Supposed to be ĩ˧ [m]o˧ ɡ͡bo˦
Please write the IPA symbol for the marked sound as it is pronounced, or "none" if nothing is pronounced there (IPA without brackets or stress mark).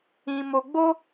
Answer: m